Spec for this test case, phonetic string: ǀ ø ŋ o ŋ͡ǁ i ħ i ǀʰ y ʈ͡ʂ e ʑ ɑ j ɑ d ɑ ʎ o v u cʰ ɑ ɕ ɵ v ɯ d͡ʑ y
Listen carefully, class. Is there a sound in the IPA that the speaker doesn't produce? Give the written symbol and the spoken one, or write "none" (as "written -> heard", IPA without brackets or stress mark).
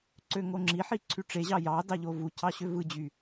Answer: ɵ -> ø